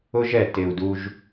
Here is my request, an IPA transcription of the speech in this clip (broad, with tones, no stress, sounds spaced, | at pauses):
ʊ˦ ʒ ɛ˨ t ɪ˨ u̯ d u˧ ʒ